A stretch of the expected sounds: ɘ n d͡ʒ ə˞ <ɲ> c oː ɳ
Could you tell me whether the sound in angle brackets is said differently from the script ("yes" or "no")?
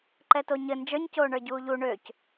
no